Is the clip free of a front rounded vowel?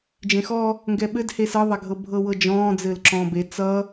yes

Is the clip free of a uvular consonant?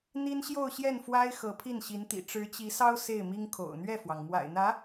yes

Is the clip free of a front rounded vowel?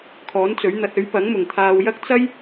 yes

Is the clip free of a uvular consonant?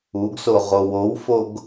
no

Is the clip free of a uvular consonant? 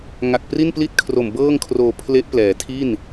yes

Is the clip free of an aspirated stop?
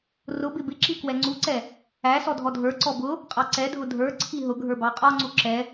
no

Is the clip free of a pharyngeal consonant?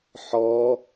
no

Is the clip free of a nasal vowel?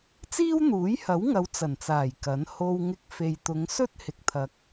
yes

